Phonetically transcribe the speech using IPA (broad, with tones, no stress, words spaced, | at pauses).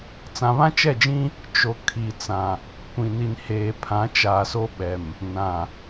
t͡sã˨βã˦t͡ʃɛ˦˨d͡ʒĩ˦ | t͡ʃo˨ kʰi˨t͡sã˨ | kʷĩ˨ni˨n heː˨pʰã˨˦ t͡ʃaː˨so˦ ɓɛ˨m | nã˨